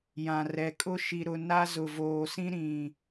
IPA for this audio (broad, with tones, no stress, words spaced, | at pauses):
jã˨rɛ˨kʼʊ˦ ʃi˨ɾʊ˨ na˦zʊ˨voː˨sĩ˦ ɾĩ˨